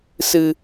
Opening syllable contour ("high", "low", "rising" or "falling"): low